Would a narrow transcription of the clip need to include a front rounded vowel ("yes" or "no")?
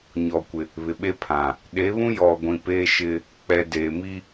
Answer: no